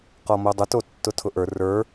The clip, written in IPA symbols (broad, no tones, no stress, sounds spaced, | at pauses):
q ɔ m o dˤ ʊ t o tː ʊ tʰ ʊ ʔ ə˞ r ə˞